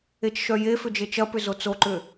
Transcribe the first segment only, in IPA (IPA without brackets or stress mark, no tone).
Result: e